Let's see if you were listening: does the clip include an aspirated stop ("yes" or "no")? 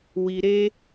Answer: no